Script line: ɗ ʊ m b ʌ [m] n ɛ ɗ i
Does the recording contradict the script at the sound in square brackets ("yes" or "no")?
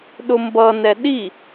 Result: yes